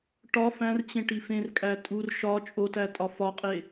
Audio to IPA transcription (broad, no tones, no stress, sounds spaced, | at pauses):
ʈ ɒ f æ̃ r t͡ɕ ẽ ʈ i f ẽ r kʼ æ tʼ u r ʃ ɒ t͡ʃʼ o t æ tʼ ɒ f ɒ qʼ e